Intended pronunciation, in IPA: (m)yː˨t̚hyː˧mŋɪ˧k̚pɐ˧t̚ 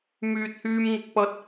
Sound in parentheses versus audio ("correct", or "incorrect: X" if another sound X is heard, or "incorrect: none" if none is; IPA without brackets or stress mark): correct